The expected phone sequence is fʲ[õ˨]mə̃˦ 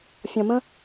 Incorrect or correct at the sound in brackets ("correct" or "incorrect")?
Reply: incorrect